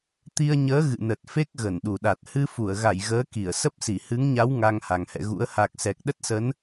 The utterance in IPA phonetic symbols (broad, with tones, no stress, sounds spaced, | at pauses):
t̪ i˧ ə̯ ɲ əː˨˦ ɣ ɨ̰˧˨ n ə˨˩ t̚ f e˦˥ k̚ ɣ ə˧˩ n ɗ u˨˩ ɗ a˨˩ t̚ h ɨ˧ f u˧˩ ə̯ ɣ a˧˩ j ɣ əː˨˦ k i˧˩ ə̯ s ə˦˥ p̚ s i˧˩ h ɨ˨˦ ŋ ɲ a˨˦ w ŋ a˧ ŋ h a˨˩ ŋ h ɛ̰˧˨ ɣ ṵ˧˥ ə̯ h a˨˩ k̚ s ɛ˨˩ k̚ ɗ ə˦˥ t̚ s ə˨˦ n